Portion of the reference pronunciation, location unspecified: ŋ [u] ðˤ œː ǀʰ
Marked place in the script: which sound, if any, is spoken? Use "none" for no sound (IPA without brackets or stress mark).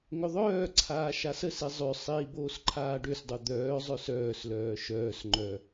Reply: ʏ